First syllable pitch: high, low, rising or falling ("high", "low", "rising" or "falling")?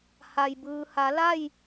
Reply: low